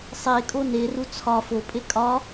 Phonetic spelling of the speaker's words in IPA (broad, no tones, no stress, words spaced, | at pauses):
sˤekʼo neru t͡sʰɒ fopʼe kʼɒ